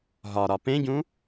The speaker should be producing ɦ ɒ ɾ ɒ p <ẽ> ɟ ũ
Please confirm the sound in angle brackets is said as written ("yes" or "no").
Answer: yes